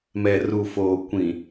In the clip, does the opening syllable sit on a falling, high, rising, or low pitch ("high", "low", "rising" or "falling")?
low